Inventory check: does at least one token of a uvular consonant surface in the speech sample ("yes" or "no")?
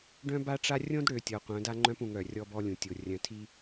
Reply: yes